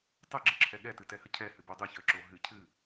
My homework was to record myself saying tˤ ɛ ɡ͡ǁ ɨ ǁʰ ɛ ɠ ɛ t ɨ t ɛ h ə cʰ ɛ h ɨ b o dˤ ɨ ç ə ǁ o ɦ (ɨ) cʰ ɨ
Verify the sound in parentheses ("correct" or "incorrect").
correct